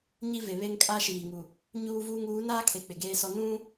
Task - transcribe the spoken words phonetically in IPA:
ɲi˦ve˨βe˦ŋ kʼa˦ʃiː˨ŋu˨ | ɲuː˦vuː˦ŋ uː˨˦naː˦ kʰe˨k͡pɪ˨ɡeː˦sɔ˦ nũ˦

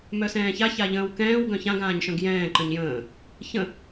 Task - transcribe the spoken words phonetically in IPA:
mœsɛ̃ːça çaʎə̃ːwkɛ̃ːw ɡœ̃çãɡ ãːɲʃœ̃ɡjɛ̃ː ǃə̃ɲjə̃ː | çə̃

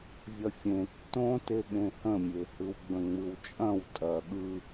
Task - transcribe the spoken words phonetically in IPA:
vʲɐfʲẽ tːõ teɠẽhə̃mʲe hɯwɡ͡bə̃ŋ͡mɯwt͡ʃʼɐ̃w tʼɐ ɠɯ

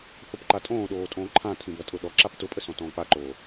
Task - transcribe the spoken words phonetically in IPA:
θopǃatʼõːɗoː tʼõːǃʰãtʰĩ bɐtʼʊɗɔǁap tʊpʼə sɔ̃tɔ̃ːk͡paǃoː

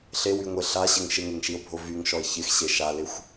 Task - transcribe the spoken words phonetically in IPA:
ɬewyŋʷe ɬaɕɪŋ ʃɪŋeŋʃio̯bʱo vyŋʃɔe̯ çɪxɕe ʃalɪxʷ

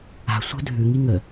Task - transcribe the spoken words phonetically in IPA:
a̤ sʷə̤ dʱʉŋi ŋə

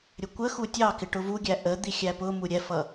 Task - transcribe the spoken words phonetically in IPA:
ɾʲəkʷəxu tʲɑkɪ ʈʊvuɡʲæ ʔə d̪ixʲæpʊmu ɾʲɛfʌ

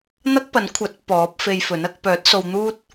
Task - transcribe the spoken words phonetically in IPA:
n̪ɐ˥k̚pɐ˨˥nkʷʰɐ˨˥t̚ pɔː˨˥p̚fe˧jfɵ˨˥n ɐ˧k̚ pœː˨˥t̚so˧wn̪uː˥t̚

